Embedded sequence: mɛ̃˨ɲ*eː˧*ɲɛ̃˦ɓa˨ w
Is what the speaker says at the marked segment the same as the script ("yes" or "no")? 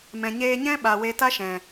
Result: yes